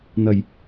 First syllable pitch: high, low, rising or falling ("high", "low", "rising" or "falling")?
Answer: low